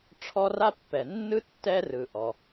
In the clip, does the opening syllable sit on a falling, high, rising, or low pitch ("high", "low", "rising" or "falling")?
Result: high